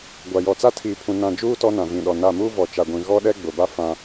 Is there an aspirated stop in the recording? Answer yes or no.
yes